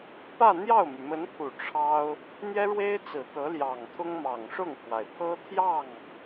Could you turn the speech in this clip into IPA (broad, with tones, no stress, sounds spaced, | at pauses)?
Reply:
p ä˥˧ n̪ j ɑ˥˩ ʊ̯ m y˩ m ə˧˥ n pʰ u˨˩ ʈ͡ʂʰ ɑ˥ ʊ̯ | n̪ j ɛ˥ ɻ w e˥ ɪ̯ t͡s ɹ̩˨˩ t̪ ɤ˧˥ l j ɑ˨˩ ŋ t̪ʰ ʊ˥ ŋ m ɑ˨˩ ŋ ʂ ʊ˥˩ ŋ pʰ w a˩ ɪ̯ pʰ ɤ˥ t̪ʰ j ɑ˥˩ ŋ